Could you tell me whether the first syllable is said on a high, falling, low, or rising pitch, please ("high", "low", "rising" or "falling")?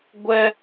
high